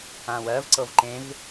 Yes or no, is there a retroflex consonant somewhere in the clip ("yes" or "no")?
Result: no